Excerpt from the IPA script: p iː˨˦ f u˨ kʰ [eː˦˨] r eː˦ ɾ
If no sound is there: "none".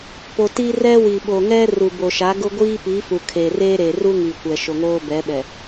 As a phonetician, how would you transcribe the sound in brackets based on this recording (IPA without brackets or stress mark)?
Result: eː˨